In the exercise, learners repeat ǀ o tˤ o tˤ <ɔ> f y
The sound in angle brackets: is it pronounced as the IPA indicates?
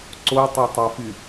no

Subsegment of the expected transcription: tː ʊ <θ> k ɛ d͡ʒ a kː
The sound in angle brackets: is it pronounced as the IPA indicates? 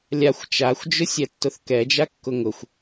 yes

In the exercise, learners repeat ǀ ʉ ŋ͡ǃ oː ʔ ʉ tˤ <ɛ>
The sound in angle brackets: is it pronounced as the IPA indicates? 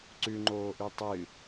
no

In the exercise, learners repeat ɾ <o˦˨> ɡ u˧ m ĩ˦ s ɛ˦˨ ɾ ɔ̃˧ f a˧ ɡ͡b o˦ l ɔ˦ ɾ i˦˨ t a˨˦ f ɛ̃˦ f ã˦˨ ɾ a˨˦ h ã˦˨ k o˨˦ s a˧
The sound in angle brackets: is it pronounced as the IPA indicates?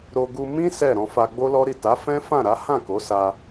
no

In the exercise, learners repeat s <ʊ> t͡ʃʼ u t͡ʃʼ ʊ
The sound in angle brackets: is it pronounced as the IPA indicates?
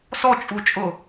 no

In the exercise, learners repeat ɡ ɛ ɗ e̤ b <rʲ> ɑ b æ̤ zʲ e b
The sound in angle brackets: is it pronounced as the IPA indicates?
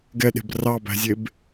no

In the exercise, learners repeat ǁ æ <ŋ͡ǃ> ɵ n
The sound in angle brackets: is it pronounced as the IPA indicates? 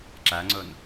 no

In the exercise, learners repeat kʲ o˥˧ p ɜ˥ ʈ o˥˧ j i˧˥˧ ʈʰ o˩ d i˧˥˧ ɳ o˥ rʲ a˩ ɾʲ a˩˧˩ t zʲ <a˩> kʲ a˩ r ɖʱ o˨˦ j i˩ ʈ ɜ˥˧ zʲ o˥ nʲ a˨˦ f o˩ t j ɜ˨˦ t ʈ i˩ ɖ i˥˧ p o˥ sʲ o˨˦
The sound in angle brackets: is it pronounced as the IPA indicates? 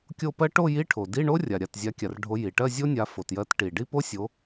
no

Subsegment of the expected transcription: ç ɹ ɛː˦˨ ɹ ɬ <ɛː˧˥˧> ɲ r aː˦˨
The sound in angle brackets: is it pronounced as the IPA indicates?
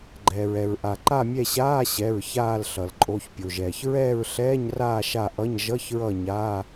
yes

